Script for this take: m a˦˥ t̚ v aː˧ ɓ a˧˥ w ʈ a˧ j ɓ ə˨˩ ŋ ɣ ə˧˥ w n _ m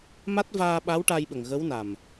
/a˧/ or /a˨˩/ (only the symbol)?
a˨˩